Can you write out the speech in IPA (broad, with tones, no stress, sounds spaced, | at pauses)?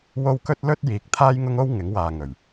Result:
w o˥ w k ɵ˥ t̚ l ɵ˥ t̚ j iː˨˥ k̚ t̪ʰ aː˥ j ŋ ʊ˥ ŋ o˥ w ŋ ɪ˨˥ ŋ w aː˨ ŋ ɵ˨˩ ɥ